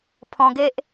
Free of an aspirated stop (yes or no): no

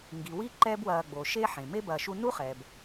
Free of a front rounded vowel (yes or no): yes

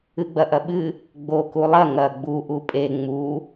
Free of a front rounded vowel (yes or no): yes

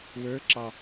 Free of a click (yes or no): no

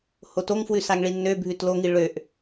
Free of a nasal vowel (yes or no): yes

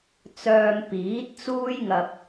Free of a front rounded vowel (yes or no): no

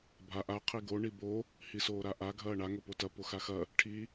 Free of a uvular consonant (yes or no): no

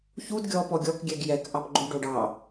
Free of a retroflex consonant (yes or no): no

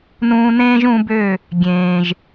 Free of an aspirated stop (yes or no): yes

